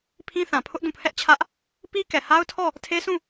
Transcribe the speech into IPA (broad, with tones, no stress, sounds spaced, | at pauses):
pʰ ĩ˦ θ ã˨ pʰ ʊ˦ ʔ d ũ˦˨ pʰ ɛ˦ ʔ t͡ɕʰ ä˦ ʔ | p i˦ k ɛ˨ h a˦ ʊ̯ tʰ ɔ˦˨ | tʰ e˦ s ũ˦˨